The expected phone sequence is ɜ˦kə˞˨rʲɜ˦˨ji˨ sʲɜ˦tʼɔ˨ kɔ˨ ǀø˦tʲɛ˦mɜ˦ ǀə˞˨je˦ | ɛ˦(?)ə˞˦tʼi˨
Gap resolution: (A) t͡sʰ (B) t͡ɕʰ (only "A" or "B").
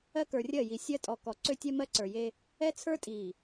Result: A